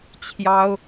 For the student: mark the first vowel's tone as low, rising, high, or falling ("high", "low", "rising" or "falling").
high